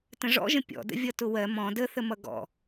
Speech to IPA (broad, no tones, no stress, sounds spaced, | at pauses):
t ə̃ ʐ ɔ̰ ʒ ə̃ pʲ ɔ̰ d ə̰ vʲ ʌ t ʊ w ɜ m ɔ̃ d ə θ ə m ʌ ɡ ɔ̰